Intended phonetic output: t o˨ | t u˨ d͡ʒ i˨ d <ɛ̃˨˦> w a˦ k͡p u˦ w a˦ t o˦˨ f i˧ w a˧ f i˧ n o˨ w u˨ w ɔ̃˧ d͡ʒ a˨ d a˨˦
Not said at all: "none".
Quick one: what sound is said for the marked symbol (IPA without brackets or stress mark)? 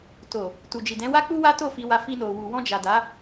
ɛ̃˨˦